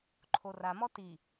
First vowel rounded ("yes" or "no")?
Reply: yes